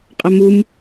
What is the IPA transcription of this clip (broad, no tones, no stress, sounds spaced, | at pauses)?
qʼ ʌ m u m